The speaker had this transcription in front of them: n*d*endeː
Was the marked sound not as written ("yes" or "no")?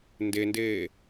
no